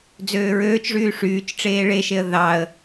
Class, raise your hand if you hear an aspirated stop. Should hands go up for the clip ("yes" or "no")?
no